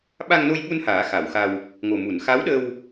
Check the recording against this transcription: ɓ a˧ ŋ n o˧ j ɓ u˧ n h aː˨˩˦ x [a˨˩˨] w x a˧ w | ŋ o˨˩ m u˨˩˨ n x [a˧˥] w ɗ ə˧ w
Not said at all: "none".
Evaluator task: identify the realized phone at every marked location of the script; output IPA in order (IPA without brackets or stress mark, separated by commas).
a˨˩˨, a˧˥